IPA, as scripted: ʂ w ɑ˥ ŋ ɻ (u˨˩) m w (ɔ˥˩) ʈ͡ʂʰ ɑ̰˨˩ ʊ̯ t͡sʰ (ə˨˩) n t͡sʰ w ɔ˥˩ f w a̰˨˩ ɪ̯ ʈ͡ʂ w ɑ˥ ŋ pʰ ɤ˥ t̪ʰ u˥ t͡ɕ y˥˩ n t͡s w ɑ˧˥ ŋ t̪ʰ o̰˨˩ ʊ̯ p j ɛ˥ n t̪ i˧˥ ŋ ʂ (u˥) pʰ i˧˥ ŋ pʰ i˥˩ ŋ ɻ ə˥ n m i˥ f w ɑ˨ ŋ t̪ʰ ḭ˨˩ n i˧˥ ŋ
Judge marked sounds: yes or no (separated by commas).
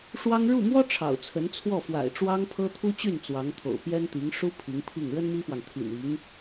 no, no, no, yes